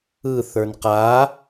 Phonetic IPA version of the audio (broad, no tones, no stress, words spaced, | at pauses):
ɯθə˞n qa